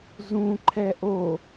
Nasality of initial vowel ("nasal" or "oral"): nasal